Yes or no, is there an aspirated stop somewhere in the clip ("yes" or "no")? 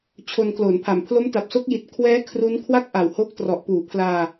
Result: yes